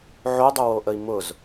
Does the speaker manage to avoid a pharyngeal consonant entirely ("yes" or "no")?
no